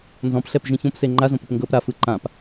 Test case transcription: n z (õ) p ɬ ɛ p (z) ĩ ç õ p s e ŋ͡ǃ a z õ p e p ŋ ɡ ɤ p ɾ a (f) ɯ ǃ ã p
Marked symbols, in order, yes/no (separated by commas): no, no, yes